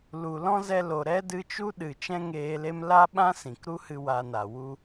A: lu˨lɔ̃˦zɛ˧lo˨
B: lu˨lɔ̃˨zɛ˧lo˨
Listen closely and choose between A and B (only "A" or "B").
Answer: A